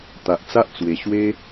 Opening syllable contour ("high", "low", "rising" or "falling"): low